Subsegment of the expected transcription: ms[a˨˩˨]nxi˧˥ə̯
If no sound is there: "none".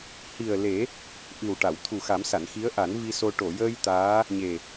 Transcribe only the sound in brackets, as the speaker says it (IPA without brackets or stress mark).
a˨˩˨